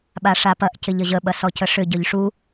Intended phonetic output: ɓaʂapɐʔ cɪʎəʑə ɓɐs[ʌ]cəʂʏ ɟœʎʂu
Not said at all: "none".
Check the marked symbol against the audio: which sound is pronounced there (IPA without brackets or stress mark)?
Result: ɔ